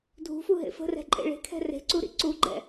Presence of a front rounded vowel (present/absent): absent